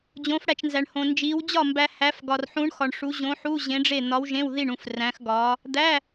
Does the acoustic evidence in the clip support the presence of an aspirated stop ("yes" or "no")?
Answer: no